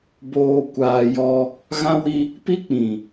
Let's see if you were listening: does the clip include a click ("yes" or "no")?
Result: no